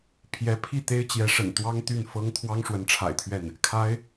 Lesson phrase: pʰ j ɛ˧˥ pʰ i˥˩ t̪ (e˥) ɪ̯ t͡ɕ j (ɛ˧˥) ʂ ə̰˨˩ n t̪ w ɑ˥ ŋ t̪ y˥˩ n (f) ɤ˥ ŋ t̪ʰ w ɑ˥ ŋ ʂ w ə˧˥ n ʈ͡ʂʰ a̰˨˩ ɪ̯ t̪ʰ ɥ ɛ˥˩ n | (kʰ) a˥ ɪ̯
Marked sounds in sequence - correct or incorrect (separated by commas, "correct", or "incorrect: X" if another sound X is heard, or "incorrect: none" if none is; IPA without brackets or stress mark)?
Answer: correct, correct, correct, correct